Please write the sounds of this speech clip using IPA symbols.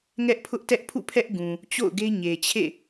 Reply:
ŋ ɛ˦ ʔ pʰ ʊ˦ ʔ t ɛ˦ ʔ pʰ ṵ˦˨ pʰ ɛ˦ ʔ ɡ ũ˨ | t͡ɕ o̰˦˨ ʊ̯ ɡ e˦ ɲ e˨ t͡ɕʰ ḛ˦˨

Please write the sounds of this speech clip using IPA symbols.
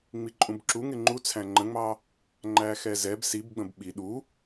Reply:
ŋ͡m i ǃʼ ũ b ǁ u ŋ ɪ ŋ͡ǃ u t͡sʰ æ̃ ŋ͡ǃ ə̃ ŋ͡m ɑ | ŋ͡ǃ æ x ɛ z ɛ b s i b ɡ͡b ə̃ b ɓ i ɗ u

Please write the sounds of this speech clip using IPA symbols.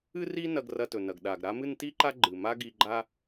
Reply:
ɨ˥ r i˥ n ɐ˧ ɡ r ɐ˧ t ɵ˩ n ɐ˩ ɡ ɗ a˩ ɡ ɾ a˥ m ɨ˥ n t i˥ ǃ a˥ ɡ͡ǃ ɨ˩ m a˥ ɡ i˧ ɡ͡ǃ a˥

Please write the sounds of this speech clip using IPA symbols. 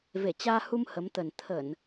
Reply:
v e˧˩ t͡ɕ aː˧ h u˧ m h ə˨˦ m t̪ ə˨˩ n t̪ʰ ə˧˩˨ n

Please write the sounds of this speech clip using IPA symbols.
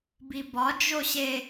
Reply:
b i b ɒ d͡ʒ o ɕ e

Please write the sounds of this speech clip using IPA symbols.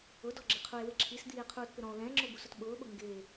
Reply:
ʊ d ɔ ɡ͡ǁ ɪ qʰ u e̯ w ɪ ǁʰ i s d̪ iː e̯ qʰ uː t p ɪ ɾ ɔ̃ o̯ l ɛ̃ ŋ͡ǁ ʊ b u s ʊ t ɓ ʊː ɓ ʊ ŋ ɡ ɪː

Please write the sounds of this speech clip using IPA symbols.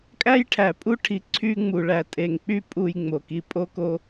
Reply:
kʼ æ˦ j ʈʰ æ˨ pʼ u˦ ʈʰ i˨ ǀʰ y˧ ŋ͡m u˨ ɭ æ˨ tʼ e˨ ŋ k͡p y˦ pʼ u˧ j ŋ͡m o˨ k i˧ pʼ o˦ k o˦

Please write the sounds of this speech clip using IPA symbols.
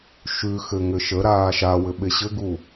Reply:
ʃ ʉ x ɘ ŋ ɘ ʃ ə ɾ aː ʃ a w ɘ ɓ e ɕ ɘ ɡ u

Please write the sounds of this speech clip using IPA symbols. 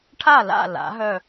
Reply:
ʈʰ a˥˩ l a̰˥˩ l a̰˩˥ ɦ œ˥˩

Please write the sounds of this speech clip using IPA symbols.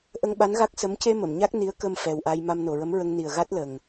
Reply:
ʔ ə˧ ŋ ɓ a˧˥ n ɣ a˦˥ k̚ s ə˧˥ m c e˧ m ə˨˩˨ m ɲ a˦˥ k̚ n i˧˥ ə̯ k ə˧ m f ɛ˨˩ w ʔ a˧ j m a˧ m n o˨˩ ɹ ə˧˥ m ɹ ə˧ ŋ n i˨˩ ə̯ ɣ a˦˥ t̚ l ə˨˩ ŋ

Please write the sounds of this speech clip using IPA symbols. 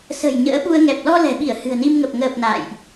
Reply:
s ə̤˨˩ j ɲ ə̰ː˧˥ ɓ u˧ ə̯ ŋ ɛ˨˩ p̚ l ɔ˧ l ɛ̤˨˩ ɓ i˧˩ ə̯ h ɨ̤˨˩ ə̯ n i˧ m ŋ ə˨˩ p̚ ŋ əː˨˩ p̚ n a̰ː˧˨ j ʔ

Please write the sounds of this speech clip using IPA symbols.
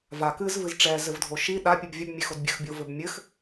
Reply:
v a k ɨ z v ɨ z ʈ͡ʂ ɛ z ɘ v dʱ o ʃ i ɗ a pʲ ɨ b vʲ ɘ b mʲ e x o d bʲ ɘ x bʲ o v ɘ b mʲ ɘ x

